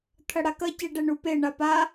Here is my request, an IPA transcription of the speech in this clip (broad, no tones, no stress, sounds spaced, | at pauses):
t̪ʰ ɐ ɽ a k ɐ c e ɖ ɛ ɳ u p e ɳ a p a